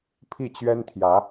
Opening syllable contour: falling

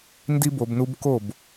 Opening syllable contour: high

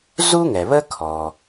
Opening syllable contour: high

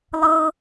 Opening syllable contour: high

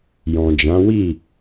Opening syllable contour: low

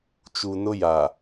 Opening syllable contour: low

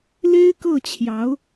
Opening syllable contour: high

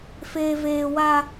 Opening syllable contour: high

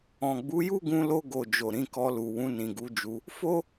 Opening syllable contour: low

